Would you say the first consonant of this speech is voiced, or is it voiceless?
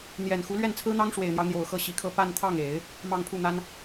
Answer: voiced